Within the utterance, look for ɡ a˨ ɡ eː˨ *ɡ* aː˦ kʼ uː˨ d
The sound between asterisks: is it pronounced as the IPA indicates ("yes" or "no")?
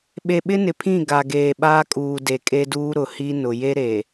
no